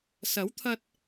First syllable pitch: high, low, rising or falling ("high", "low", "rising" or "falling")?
rising